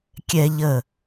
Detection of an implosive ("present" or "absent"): absent